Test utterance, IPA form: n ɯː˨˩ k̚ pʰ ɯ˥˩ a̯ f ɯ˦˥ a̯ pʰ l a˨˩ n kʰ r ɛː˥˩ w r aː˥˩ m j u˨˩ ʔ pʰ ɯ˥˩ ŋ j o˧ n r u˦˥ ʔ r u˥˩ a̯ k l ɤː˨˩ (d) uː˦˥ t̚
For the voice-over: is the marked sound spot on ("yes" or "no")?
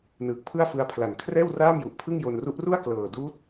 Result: yes